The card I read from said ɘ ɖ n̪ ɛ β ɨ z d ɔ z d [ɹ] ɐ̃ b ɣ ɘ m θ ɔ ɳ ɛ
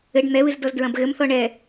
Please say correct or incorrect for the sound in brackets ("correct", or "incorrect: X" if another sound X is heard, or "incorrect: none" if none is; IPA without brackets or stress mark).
correct